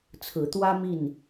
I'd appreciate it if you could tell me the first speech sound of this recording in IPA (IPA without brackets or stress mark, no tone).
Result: t͡sʰ